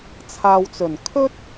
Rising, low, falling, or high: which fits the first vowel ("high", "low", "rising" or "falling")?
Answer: low